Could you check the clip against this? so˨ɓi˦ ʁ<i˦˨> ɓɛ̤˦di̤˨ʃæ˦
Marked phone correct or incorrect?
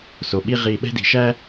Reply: correct